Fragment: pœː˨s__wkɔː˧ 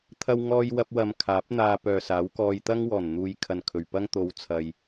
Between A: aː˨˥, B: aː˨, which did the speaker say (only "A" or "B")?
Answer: A